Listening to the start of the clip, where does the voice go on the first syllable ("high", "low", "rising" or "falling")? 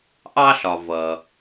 high